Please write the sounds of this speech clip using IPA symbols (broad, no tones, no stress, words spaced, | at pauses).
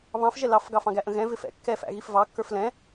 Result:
βɑ̃fʒɛ lɑfɡɑfɑ̃ɡæ ʔə̃ɣɛ̃ vɪfɛ̰ kːɛfæ̰ɣif vɑkːə˞f lɛ̃